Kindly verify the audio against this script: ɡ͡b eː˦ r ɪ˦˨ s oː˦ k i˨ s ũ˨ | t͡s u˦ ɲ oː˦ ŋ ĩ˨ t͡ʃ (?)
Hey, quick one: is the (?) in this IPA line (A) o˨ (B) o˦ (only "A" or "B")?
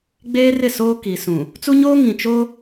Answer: B